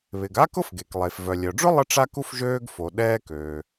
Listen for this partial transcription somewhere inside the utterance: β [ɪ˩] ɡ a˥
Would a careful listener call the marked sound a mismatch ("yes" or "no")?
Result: no